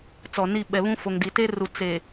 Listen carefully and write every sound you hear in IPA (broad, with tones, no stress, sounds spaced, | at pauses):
t͡s ɔ˨ n i˦˨ ɓ ɛ˨ β ũ˦ f o˨ ŋ d i˨ t e˦ r u˨ t͡s e˨